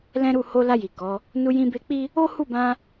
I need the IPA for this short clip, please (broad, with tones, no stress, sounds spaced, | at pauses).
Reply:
l ɛ̃˦ ɾ u˦˨ h o˧ l a˧ j i˨ k ɔ˨˦ | n u˧ j ĩ˧ b e˧ k͡p i˦ | o˦ h u˦˨ b ã˧